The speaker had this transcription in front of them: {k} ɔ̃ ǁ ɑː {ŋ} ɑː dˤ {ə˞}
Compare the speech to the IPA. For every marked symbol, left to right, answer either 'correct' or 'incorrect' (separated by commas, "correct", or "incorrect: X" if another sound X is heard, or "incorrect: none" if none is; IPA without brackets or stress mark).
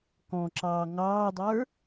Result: correct, correct, correct